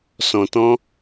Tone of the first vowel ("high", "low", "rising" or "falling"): low